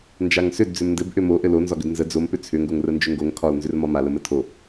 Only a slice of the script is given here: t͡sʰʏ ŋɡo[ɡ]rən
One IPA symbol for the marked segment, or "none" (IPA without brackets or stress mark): ŋ